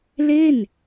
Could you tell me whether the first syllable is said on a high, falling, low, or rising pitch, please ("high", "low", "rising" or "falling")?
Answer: falling